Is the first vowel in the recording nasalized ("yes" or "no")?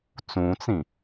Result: yes